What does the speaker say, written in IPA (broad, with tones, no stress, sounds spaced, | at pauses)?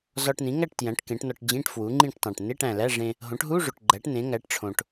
z ɒ˧ ʈ n ĩ˩˥ ŋ æ˥˨ ʈ t j æ̃˩˥ ʈ k ẽ˩˥ ʈ n ɒ˧ ʈ d͡ʑ ĩ˧˥˧ ʈ f w u˩˥ ŋ͡ǃ ĩ˥˨ ʈ tˤ æ̃˨˩ ʈ n e˧˥˧ ʈ æ̃˨˩ l æ˧˥˧ ʐ ẽ˧ | ɦ õ˩˥ ʈ ɦ u˧˥˧ ʐ o˨˩ ʈ ɡ͡ǃ æ˩˥ ʈ n ẽ˩˥ ŋ æ˩˥ ʈ ʈ͡ʂʰ õ˨˩ ʈ